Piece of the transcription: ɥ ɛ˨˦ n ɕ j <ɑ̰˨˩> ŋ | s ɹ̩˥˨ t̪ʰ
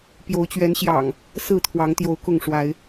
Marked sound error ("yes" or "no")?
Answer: no